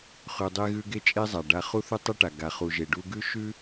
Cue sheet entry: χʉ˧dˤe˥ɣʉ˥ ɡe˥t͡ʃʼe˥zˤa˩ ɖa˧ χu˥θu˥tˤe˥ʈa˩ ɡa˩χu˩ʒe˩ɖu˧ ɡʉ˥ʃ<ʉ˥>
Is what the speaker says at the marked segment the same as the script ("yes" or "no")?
yes